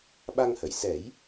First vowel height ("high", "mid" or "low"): low